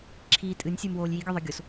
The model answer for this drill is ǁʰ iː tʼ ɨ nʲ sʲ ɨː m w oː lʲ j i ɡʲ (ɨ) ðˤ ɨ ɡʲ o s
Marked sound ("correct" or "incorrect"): correct